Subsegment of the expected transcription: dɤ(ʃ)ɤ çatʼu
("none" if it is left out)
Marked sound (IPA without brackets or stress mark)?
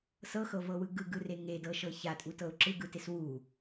ʃ